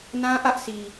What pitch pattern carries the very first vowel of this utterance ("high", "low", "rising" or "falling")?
high